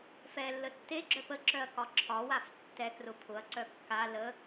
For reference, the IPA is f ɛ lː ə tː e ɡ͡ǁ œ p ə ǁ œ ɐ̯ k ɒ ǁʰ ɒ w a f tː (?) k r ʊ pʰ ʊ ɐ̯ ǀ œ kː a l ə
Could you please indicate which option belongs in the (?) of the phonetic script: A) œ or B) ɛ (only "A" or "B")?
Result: B